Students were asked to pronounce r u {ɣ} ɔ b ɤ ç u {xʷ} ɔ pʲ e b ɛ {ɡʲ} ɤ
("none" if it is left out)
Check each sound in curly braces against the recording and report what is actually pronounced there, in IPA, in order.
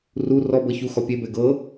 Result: r, x, ɡ

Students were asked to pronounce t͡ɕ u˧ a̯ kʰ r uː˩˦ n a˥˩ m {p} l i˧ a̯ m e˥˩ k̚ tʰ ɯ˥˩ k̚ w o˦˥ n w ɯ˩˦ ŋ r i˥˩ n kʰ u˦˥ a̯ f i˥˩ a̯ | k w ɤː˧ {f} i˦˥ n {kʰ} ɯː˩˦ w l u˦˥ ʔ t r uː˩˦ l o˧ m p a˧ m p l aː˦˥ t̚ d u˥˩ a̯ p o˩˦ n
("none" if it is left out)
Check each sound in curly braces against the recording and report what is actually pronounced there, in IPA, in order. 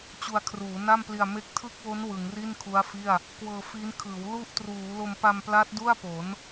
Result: p, f, kʰ

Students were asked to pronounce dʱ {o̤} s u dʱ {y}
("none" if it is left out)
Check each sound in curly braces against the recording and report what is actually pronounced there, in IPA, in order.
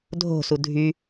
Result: o̤, y

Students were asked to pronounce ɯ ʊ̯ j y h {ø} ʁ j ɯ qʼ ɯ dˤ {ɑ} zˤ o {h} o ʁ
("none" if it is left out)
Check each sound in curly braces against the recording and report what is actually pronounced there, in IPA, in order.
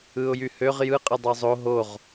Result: ø, ɑ, ɦ

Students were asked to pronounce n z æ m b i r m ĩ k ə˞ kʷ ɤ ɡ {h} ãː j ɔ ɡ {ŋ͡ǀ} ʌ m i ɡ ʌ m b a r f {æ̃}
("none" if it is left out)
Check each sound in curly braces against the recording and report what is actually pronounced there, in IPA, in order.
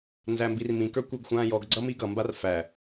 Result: xʷ, ɡ͡ǀ, æ

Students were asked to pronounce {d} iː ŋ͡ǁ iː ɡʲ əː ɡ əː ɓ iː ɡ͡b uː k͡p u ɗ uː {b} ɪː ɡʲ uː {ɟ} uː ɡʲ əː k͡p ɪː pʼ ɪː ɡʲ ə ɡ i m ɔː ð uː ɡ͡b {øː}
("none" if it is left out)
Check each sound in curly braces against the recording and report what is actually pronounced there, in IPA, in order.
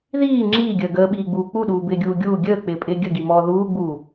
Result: ð, b, ɡʲ, uː

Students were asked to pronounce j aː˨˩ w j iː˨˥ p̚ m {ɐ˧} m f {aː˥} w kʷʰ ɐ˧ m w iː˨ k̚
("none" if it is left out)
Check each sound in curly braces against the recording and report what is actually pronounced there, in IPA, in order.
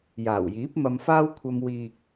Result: ɐ˧, aː˥

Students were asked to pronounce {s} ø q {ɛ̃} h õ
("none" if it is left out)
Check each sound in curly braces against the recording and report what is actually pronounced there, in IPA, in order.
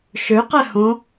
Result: ʃ, ɛ

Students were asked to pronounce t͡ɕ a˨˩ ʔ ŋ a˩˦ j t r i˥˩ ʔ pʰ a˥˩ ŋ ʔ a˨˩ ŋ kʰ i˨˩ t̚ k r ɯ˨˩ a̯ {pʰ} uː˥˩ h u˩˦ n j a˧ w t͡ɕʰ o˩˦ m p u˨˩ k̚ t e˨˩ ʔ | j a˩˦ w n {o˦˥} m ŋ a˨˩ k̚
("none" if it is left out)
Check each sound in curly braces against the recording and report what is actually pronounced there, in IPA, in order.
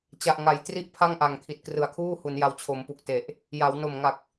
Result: kʰ, o˨˩

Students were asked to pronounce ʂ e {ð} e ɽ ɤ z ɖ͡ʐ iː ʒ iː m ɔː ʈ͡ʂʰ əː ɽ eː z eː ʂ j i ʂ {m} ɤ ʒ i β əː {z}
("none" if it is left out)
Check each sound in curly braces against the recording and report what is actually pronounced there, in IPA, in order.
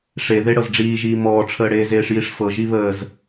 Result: ð, f, z

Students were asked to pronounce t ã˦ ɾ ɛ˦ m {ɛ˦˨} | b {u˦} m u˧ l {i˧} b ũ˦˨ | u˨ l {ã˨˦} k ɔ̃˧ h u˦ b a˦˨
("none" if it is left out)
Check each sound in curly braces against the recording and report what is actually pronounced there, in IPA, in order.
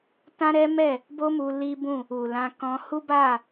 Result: ɛ˦˨, o˦, i˦, ã˧

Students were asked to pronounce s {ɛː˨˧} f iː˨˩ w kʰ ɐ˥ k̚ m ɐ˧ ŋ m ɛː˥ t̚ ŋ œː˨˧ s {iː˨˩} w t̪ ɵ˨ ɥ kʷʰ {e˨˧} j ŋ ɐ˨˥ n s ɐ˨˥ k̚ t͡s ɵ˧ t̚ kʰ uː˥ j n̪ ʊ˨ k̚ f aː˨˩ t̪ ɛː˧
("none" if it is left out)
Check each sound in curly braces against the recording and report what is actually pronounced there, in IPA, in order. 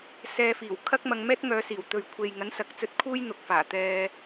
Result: ɛː˧, iː˨˩, e˨

